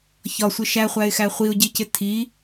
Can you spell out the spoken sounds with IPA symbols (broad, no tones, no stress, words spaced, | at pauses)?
çɒsʷɪ ʃæχʷæɪ̯xæ χʷiʊ̯ɟicɪ tʰi